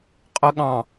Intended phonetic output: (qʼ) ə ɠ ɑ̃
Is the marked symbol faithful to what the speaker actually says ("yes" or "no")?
yes